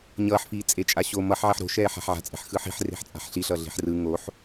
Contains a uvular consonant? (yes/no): no